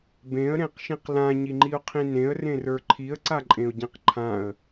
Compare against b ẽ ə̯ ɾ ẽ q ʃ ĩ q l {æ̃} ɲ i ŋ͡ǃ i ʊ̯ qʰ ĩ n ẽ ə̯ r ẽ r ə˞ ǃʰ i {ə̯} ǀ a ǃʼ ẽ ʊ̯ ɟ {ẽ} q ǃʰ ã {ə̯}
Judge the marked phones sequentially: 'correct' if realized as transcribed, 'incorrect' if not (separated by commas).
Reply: incorrect, correct, correct, correct